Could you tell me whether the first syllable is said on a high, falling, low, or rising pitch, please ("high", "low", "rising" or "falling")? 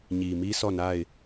low